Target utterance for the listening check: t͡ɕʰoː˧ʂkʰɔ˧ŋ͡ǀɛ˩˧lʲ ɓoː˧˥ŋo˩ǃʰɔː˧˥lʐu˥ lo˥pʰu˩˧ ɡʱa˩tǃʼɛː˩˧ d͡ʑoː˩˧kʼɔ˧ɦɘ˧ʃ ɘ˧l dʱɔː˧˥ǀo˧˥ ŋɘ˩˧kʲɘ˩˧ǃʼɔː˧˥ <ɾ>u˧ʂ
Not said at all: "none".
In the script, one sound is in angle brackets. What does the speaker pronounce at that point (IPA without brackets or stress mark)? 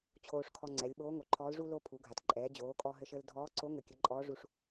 ʐ